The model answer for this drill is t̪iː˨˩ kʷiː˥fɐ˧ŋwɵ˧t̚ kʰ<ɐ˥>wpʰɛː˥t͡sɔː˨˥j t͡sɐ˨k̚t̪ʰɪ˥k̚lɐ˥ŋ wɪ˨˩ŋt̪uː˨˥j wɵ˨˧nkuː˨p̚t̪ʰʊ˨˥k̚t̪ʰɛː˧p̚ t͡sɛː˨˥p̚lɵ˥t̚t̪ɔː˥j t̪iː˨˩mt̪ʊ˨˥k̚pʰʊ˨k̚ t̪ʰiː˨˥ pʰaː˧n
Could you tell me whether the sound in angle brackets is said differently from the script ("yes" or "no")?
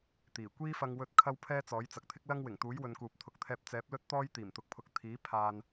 no